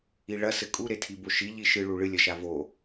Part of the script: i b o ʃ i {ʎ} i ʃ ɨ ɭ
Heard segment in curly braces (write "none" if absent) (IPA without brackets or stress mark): ʎ